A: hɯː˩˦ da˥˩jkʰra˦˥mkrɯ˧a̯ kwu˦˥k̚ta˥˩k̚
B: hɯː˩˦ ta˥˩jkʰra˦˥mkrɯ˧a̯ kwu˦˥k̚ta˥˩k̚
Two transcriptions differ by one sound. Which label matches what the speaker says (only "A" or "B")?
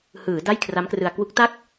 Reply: A